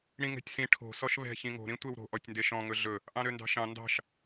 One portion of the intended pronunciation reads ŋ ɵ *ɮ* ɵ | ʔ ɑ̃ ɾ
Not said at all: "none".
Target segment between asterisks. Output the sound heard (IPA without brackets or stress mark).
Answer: ɮ